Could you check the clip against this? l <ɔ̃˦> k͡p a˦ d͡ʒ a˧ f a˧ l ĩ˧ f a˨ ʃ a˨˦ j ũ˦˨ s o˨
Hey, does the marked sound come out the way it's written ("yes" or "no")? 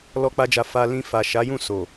no